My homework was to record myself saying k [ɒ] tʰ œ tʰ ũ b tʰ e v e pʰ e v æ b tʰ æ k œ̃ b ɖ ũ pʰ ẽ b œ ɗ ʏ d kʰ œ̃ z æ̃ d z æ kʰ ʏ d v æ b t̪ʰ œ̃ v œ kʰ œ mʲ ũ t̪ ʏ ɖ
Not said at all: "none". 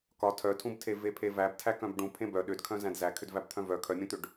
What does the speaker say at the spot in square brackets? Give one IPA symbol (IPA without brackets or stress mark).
ɒ